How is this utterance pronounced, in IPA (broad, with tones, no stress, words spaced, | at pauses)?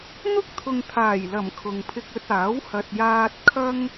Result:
n̪ʊ˥k̚t̪ʰʊ˨ŋt̪ʰaː˨˩jlɐ˨˩m kʰʊ˨ŋpʰɪ˧k̚ɵ˧t̚aː˨˥w hɐ˨t̚jaː˧t̚ kʰɐ˥ŋ